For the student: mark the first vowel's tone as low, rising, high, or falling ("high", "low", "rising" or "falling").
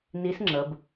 rising